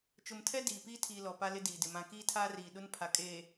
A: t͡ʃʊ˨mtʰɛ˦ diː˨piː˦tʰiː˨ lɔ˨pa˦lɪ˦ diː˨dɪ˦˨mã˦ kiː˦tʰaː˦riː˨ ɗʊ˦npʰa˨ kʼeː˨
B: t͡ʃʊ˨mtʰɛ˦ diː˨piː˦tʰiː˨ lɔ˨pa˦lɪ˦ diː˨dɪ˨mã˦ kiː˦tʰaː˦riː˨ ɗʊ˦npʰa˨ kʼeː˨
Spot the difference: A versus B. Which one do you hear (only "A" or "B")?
B